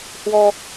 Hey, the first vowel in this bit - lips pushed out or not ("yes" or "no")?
yes